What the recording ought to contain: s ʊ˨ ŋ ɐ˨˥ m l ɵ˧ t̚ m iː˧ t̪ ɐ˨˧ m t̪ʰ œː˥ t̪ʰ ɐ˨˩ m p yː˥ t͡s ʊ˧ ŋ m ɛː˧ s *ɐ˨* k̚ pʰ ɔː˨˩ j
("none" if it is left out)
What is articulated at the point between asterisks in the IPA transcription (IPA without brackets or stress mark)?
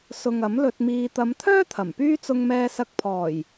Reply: ɐ˧